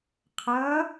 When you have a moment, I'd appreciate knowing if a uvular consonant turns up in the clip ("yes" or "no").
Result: yes